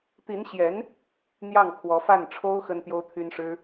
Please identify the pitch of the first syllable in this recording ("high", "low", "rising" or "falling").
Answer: rising